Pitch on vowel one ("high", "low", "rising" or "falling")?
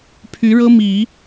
rising